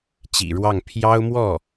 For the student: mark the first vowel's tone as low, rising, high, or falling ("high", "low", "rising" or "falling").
low